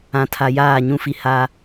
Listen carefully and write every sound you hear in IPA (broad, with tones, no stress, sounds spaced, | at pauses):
ã˨ tʰ a˨ j aː˦˨ ɲ ũ˦ f i˨ h a˦